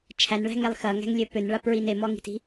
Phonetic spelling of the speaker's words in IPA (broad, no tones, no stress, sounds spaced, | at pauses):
t͡ʃʰ æ n ɭ æ̤ ŋ ɛ lˠ x ɐ ŋ æ̤ ŋ lʲ ø p ø n ɭ a p ɹ i n e m ɔ ŋ i̤ t i̤